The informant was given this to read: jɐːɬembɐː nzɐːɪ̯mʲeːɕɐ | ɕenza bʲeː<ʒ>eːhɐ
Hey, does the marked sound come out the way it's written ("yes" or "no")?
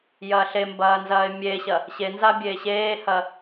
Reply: no